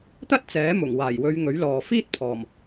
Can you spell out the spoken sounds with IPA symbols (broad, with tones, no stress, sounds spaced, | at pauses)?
t̪ ɐ˥ t̚ t͡s ɛː˨˥ m ʊ˨˩ ŋ w aː˨˩ j w ɵ˨˧ ɥ ŋ ɵ˨˥ ɥ l ɔː˨ f iː˥ t̚ pʰ ɔː˨˩ m